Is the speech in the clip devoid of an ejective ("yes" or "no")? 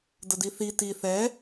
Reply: yes